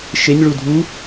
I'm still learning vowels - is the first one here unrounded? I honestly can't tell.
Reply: yes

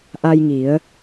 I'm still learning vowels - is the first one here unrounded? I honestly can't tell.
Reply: yes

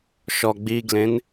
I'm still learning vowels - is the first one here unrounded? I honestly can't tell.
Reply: no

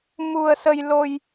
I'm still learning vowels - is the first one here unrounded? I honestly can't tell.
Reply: no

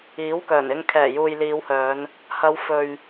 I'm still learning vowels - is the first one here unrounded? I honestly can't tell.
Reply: yes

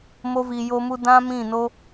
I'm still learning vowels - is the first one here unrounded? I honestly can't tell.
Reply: no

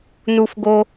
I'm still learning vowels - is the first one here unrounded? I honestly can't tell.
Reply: no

